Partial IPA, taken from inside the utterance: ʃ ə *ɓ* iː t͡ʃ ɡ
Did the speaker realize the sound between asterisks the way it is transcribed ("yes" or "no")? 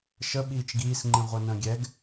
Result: yes